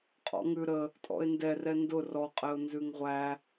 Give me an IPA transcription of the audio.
qʼ ɔ̰ ŋ ʉ ɾ ə | tʼ ɔ̰ ɪ̯ n d ɛ r ɛ n d ʊ r ɔ qʼ ɛ ʊ̯ n z ʉ ŋ ʁʷ æ

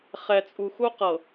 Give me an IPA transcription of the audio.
χ ɛ˨ t͡sʼ u˨ x u˦ q ɤ˨

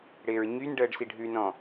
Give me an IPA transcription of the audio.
ɽ ɪː ɹ ɲ y n ɖ əː ɖ s i ɖʱ ʉ n ɔ̃

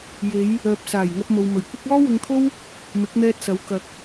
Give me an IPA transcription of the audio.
j e˨˧ j | œː˨ p̚ s aː˨˩ j ŋ ɐ˧ p̚ m o˨ w m ɵ˨˩ ɥ kʷ ɪ˥ k̚ ɔː˥ w ʊ˧ ŋ t̪ʰ o˥ w | m ɪ˨˥ k̚ n̪ ɛː˧ t̚ s ɐ˨˥ w k ɐ˨ k̚

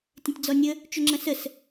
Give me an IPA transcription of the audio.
tʲ ə̃ tʲ d͡z ɔ nʲ ə | t͡ʃ ʏ ŋ͡ǁ ɐ̃ s ə s

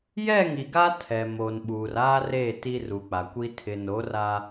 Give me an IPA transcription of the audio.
j ɛ˦˨ ŋ i˨ ɡ a˦ tʰ ɛ˨ m o˨ n ɓ uː˨ r aː˦ r eː˦˨ t i˦ r u˨ k͡p a˨ kʷ i˦ tʰ ɪ˨ n o˨˦ r a˦

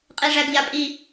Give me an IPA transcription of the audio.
qʼ i ʐ æ ɡ ʎ a pʼ i

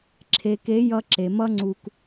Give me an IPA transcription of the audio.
ǁʰ e˨ k e˨˦ j ʌ˧ ǁ e˨ m ʌ˦ ŋ͡ǀ u˧ k

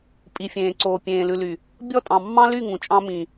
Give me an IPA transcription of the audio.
pʼ i˨ fʲ ẽː˨ ǀ oː˨ pʲ ẽː˨ l ʉ˨ l y˨ | bʲ ɔ˦˨ tʼ ɑ̃˨ mː ɑ̃˦ l y˦˨ ŋ ũ˨ t͡ʃʼ ɑ̃˦ m ĩ˨

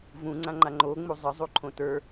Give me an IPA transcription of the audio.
v ũ ŋ͡ǀ ã ŋ͡ǃ a ŋ͡ǃ o ŋ͡m u zˤ ə zˤ u ǃʰ õ t ə˞

